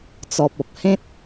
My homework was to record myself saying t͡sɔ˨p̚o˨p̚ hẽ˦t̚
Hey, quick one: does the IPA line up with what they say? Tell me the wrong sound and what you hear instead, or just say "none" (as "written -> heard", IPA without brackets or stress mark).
o˨ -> ɔ˨